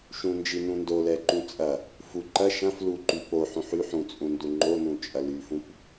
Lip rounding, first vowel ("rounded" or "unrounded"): rounded